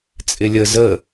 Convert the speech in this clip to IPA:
t͡sʼ ɪ lʲ ə z ə

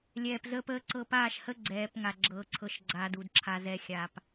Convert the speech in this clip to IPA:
lʲ ɛː˨ p z əː˦ p əː˦ ǀ ɤ˦˨ p aː˦˨ ʃ h ə˦ ɡ͡ǀ ɛː˨˦ p ŋ a˨ ɡ͡ǁ ɤː˦ ǀʰ ɤ˦ ʃ ɡ͡ǀ aː˦ d u˨ d ǁʰ a˨ z ɛ˨ xʲ a˨ p

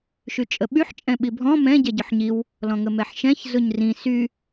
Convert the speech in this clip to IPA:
ʃ y t͡ʃʼ ə ɓ y ħ t͡ʃʼ ɛ̃ ɓ i bʱ ɔ̃ m ɛ̃ ɟ ɛ ɟ ʊ ħ ɲ i w | l ɔ̃ ŋ ə m ɛ ħ ʃ ɛ̃ ç z ʊ ɲ r ĩ s y

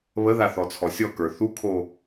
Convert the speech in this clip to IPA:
β ə ð a θ ɔ t͡sʰ ɔ sʲ ɔ k ə˞ θ u kʰ o

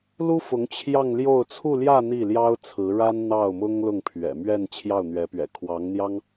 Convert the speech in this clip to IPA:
l u˥ f ʊ˧˥ ŋ t͡ɕʰ j ɑ˥˧ ŋ l j o˥˧ ʊ̯ t͡sʰ u˥˧ l j ä˥˧ n̪ i˥˩ l j ɑ˥ ʊ̯ t͡sʰ ɹ̩˧˥ ɻ a˥ n n̪ ɑ˥˩ ʊ̯ m ʊ˥ ŋ l ʊ˥˩ ŋ pʰ ɥ ɛ̰˨˩ m ɥ ɛ˥˧ n t͡ɕʰ j ɑ˥˩ ʊ̯ n̪ ɥ ɛ˧˥ p ɥ ɛ̰˨˩ kʰ w ɑ˧˥ ŋ n̪ j ɑ˥ ŋ

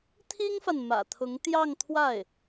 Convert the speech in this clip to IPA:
t̪ʰ i˥ ŋ f a˨ n m ä̰˨˩ t̪ʰ ʊ˧˥ ŋ t̪ j ɑ˥˧ ŋ t̪ʰ w a˥˩ ɪ̯

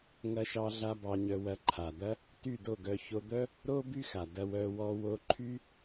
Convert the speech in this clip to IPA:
ŋ ɐ˧ ʃ ɑ˧ ɮ a˧ b ɑ˧ ɲ œ˧ w ɐ˧ ǃʰ a˨ d̪ ɐ˦ | t y˦˨ d o˦˨ ɡ œ˧ ç o˧ d̪ œ˦ | ɾ o˦ b y˦ x a˨ d ɐ˧ w œ˧ w ɔ˧ w o˧ ǃʰ y˦

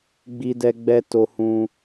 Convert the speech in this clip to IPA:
ɡ͡b i˧ d ɛ˧ ɡ͡b ɛ˧ t o˧ h ũ˧

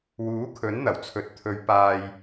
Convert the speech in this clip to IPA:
w uː˨˥ kʰ ɵ˨˥ n n̪ ɐ˨˩ w t͡sʰ ɵ˨ t̚ t̪ʰ ɵ˨˧ ɥ p aː˧ j

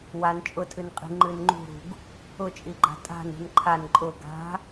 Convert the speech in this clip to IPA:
w a n t͡ʃʼ ʊ tʰ ɨ n qʼ i̤ ŋ͡ǃ ɨ n ŋ͡ǃ ṳ ɾ ṳ ɡ | ʊ t͡ʃʼ i ɡ͡ǃ a̤ tʼ a̤ n ṳ n ǃʰ a n ǃʼ ʊ ɡ a̤

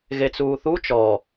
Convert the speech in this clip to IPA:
ɣ e t͡s uː θ u t͡ʃ ɔ

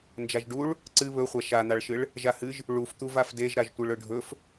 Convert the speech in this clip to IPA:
n d͡ʒ a ʒ ɖ u ɭ | ǀ ɨ β ɵ χʷ a ʃ a n̪ a ɭ ʃ ɨ ɭ | ʒ a h ɨ ʒ | ɭ u f t̪ u v a f d e ʒ ɾ a ʒ tʷ ɨ ɭ ɵ ɖʱ ɵ f

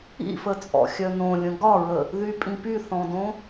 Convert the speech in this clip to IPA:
ḭ f ə t͡sʼ ɔ̰ xʲ œ n õ lʲ ə̃ ɡ ɒ ɹ ə | ð y pʼ ĩ p y θ ɔ̃ d õ

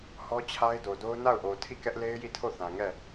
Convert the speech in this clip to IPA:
h ɔ˦ t͡ɕʰ a˦ ɪ̯ d o˨ d o˦ ʊ̯ n a˦˨ ʊ̯ ʔ o˨ tʰ i˦˨ k ɛ˦ ʔ l e˦ ɪ̯ j i˦˨ tʰ o˦˨ θ ã˨ ŋ ɛ˦˨

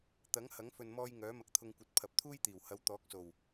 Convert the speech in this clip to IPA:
t̪ ɐ˨˥ ŋ h ɐ˨˥ ŋ f ɵ˨ n m ɔː˧ j ŋ œː˨˥ m ɐ˧ k̚ t̪ʰ ʊ˧ ŋ kʷ ɐ˨˥ t̚ pʰ ɐ˨˥ p̚ t̪ʰ uː˥ j t̪ iː˨˩ w h ɐ˨˥ w t̪ ɔː˨˥ k̚ s o˨˩ w

